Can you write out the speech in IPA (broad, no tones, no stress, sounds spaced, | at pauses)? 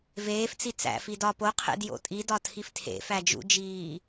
v eː f t͡s i t͡s æ̰ f i d ɒ p o qʰ ḛ d j o̰ tʼ i d ɒ tʰ i f tʰ ḛ f æ d͡ʒ ṵ d͡ʒ iː